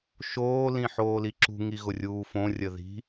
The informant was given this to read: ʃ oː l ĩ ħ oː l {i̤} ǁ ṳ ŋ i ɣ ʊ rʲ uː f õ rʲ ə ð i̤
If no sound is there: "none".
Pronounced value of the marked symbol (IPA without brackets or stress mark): i